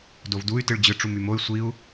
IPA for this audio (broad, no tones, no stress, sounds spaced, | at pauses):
d o v d u y̯ t ɯ ɭ d͡ʑ ɯ ʈ͡ʂ u m y m o y̯ sʷ i u̯